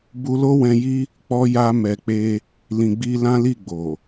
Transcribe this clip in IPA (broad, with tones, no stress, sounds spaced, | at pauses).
b u˧ l o˦ w ɛ̃˧ j i˦ | k͡p ɔ˧ j a˧ m ɛ˨ k͡p e˧ | l ĩ˨ ɡ͡b i˧ l ã˦ l i˦˨ ɡ͡b o˨